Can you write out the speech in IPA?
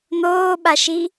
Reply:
n̪oːɓaʃi

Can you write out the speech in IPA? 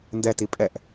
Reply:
ndɛti pʼɛʔ

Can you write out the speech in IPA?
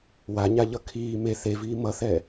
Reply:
waɲaʎʌ kʰiː me θeviː mʌθɛ

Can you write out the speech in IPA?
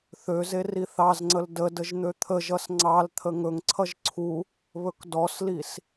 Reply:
θøze riθɑzŋ͡ǀəl dədəʒ n̪øt̪ʰəʒʌs ŋ͡ǀɑlt̪ʰə ŋɵŋǀʰʌʒ ǀʰu | βɵkdɔslis

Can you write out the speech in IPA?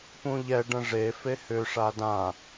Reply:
pũʎɛ ɖə̃ʐe fehʏ ʂadã

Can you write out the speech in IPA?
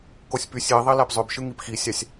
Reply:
kosʲpysʲ iðˤi læpzˤøbʃɯ ŋipxisʲɑsʲ

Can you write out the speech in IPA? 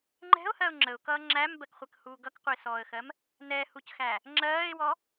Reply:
ŋ͡ǃɛ̤ʊ̯hɜʊ̯ ŋ͡ǁəʊ̯kʌː ŋ͡ǁæmbɜkχʷɜkhuː ɡʌkqʷəɪ̯sɔːə̯xɜm | nɛhucxæ | ŋ͡ǁɜːɪ̯wɔ

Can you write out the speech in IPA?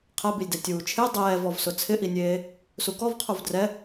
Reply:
qʰɛbilʲdɛ tʲuːt͡ʃʰe dˤɛːvɔvsʊ t͡sʰɪʔinʲeː | sukɔvqʰuv drɛ

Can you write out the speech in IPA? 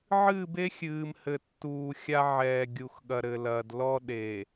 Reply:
ʕɨː˦˨be˦xʲɨː˨m hɘ˨tːuː˨xʲa˦ʕɛː˨ ɡʲu˨xɠɐ˨ɾɘ˨lɐː˨d lɔ˦ɗe˨

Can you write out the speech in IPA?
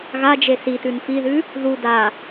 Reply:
ɣad͡ʒe sitʉn fiðʉ | ðu da

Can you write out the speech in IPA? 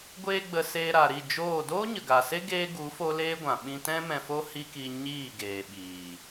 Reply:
ɡʷeː˧ ɡ͡bə˧ seː˧ɾa˨ɾi˦˨ d͡ʒoː˦˨ doː˦ɲə˨ɡa˨se˦ ɡeː˦ɡu˨˦ fo˦leː˦ɡʷã˨ ɓĩ˧tɛ̃˦mɛ̃˧fo˦ hi˦ki˧ ɲiː˦˨ ɡeː˨ɓiː˨

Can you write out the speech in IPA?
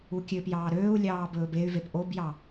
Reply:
ukʲøpjɑː ɾøːu̯lʲɑː bɵːbey̯vep ʔobjɑ

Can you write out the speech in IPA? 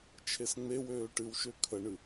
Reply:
t͡ʃʰesŋ͡mewøː ʈɨwʃø kʰəɳɨ

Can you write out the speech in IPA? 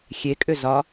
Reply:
xʲekʼʏzɒ

